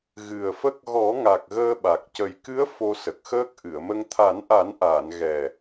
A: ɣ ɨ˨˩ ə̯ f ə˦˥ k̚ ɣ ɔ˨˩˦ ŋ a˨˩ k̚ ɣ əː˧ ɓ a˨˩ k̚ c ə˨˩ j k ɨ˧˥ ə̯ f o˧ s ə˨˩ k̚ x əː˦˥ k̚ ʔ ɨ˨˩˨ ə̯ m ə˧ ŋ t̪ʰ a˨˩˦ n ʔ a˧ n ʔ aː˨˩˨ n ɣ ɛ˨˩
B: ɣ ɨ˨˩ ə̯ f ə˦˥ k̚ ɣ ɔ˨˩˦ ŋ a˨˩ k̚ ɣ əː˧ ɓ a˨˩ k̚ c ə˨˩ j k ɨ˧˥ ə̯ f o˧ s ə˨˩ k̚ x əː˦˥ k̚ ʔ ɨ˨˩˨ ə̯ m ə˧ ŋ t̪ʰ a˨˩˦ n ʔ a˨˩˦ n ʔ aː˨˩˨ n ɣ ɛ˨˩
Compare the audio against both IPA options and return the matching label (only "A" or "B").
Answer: B